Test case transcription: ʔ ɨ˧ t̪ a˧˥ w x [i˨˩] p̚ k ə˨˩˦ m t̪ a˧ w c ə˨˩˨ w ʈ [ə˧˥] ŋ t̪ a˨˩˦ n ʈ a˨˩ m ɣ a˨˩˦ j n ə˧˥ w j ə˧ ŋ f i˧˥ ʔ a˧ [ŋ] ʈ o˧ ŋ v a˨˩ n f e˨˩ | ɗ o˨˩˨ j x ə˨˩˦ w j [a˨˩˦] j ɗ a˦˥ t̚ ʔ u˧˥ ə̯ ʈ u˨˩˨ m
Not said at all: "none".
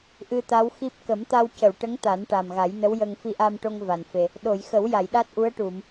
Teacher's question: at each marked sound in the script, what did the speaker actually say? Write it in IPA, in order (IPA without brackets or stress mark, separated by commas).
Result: i˦˥, ə˧˥, m, a˨˩˨